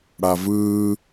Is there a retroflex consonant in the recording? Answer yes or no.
yes